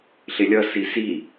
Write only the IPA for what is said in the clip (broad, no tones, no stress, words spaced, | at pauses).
ɬɪlʲʌsi si